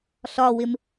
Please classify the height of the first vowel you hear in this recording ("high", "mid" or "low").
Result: low